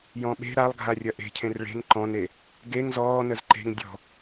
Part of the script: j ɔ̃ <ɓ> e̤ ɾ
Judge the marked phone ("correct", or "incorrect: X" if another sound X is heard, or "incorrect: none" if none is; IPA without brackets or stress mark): correct